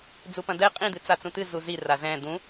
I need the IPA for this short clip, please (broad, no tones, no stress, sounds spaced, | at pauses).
d͡z u p ɐ̃ d̪ ɛ qʼ ĩ d̪ ɨ t͡s a t͡s ũ t̪ ɨ z u z i r a z ɛ̃ d̪ ũ